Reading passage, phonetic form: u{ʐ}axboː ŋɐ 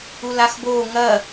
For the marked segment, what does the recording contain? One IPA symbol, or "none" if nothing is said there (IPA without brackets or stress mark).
l